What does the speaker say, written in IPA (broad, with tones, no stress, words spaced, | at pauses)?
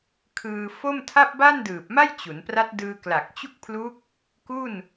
kʰɯː˧fo˥˩m tʰa˥˩p̚ba˥˩ndɯː˨˩p̚ma˥˩j t͡ɕu˩˦npra˦˥t̚ dɯː˧kla˨˩k̚ t͡ɕu˥˩k̚pʰlu˦˥k̚ | ku˥˩n